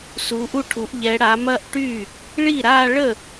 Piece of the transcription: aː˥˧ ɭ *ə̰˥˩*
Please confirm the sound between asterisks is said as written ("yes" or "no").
no